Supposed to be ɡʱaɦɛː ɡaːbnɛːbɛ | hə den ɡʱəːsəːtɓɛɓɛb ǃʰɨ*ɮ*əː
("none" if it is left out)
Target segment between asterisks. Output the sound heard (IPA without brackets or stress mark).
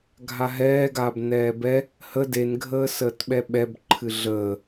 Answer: ɮ